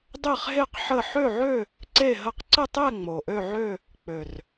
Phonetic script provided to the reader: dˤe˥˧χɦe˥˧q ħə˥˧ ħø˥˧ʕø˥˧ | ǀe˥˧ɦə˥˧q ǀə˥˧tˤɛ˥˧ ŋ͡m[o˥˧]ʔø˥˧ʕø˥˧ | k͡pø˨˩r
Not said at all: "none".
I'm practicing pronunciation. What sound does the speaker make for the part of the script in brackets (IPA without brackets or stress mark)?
o˨˩